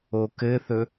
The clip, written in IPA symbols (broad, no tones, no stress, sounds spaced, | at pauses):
o k ɘ θ ɵ